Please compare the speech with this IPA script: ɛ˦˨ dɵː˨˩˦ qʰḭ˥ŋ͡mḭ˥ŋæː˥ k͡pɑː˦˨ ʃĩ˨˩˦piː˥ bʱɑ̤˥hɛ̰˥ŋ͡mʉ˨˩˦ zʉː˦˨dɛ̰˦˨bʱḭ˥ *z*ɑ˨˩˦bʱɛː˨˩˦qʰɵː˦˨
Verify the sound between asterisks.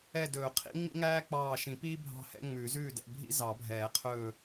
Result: correct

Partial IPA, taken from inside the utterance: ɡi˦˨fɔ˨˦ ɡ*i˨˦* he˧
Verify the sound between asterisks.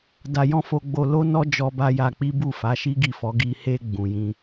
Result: incorrect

